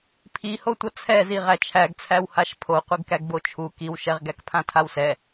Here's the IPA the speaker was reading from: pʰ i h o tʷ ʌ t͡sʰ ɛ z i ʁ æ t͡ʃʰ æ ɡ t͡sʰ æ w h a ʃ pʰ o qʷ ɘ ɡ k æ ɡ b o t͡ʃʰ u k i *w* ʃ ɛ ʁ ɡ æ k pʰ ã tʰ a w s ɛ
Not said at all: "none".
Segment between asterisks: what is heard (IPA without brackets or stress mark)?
w